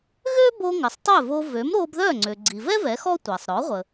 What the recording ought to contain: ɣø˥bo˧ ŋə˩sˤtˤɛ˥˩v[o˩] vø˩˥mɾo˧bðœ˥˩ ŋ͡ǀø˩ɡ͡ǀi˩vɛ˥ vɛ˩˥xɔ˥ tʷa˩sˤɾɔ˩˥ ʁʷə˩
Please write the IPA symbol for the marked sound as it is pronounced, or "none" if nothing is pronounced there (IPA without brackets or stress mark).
o˧